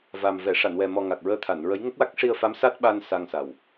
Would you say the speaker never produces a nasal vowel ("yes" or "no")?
yes